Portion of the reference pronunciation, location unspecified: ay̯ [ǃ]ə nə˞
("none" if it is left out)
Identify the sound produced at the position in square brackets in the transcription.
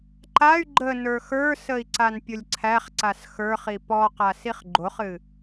ɡ͡ǃ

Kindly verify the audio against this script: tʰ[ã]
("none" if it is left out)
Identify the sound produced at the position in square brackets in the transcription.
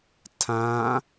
ã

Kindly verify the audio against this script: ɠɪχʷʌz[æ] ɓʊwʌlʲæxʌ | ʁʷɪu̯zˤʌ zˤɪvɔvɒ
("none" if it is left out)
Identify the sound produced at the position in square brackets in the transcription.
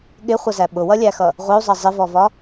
æ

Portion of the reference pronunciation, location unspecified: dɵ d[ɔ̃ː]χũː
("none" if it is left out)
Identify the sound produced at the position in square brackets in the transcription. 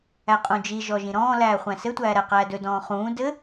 ɔ̃ː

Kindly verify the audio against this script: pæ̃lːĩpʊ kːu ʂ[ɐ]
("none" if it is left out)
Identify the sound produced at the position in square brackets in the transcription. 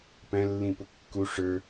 ə˞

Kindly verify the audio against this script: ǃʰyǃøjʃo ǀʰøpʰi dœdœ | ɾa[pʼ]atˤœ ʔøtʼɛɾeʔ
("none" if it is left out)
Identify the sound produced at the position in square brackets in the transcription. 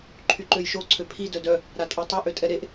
tʼ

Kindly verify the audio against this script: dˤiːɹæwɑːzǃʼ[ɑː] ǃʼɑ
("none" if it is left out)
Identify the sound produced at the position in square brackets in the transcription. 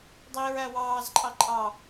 ɑ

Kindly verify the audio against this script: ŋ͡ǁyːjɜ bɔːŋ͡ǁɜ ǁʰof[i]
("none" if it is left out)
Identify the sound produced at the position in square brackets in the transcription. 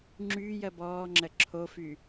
y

